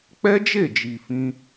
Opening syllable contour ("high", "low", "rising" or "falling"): high